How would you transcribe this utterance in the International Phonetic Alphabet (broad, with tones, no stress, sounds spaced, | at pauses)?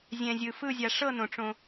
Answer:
zʲ ɛ̃˨ zʲ ɯ˨ f ɯ˦˨ zʲ a˨ ʂ ɤ˦˨ n õ˨ ʈ͡ʂ õ˦